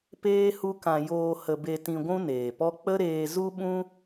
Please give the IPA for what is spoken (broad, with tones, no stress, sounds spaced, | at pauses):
p eː˦ h u˦ k ã˧ j oː˧ h ə˧ b e˧ t ĩ˧ ɡʷ ũ˦ n eː˨ p ɔ˦ k͡p ə˦ ɾ eː˧ z u˦ ɓ ũ˦